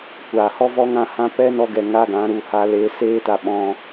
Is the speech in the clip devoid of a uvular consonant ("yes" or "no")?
yes